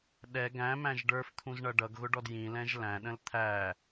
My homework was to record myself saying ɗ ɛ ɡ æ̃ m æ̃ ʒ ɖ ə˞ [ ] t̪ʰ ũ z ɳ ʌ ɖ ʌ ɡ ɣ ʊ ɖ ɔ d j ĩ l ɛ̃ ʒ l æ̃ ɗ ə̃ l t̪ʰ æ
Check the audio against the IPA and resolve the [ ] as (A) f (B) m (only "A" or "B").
A